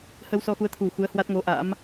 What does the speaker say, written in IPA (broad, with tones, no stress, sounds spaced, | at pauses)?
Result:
h ə˧ w s ɔ˧ x u˨˦ ə̯ t̪ʰ u˨˩ x u˨˦ ə̯ h w a˦˥ t̚ ŋ o˨˦ ʔ a̰˧˥ m